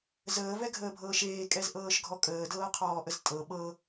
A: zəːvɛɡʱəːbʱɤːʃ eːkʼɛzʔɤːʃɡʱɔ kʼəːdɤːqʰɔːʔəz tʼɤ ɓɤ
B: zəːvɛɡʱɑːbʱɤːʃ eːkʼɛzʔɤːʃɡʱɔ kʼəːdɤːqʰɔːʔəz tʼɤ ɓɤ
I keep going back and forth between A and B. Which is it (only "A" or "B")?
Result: A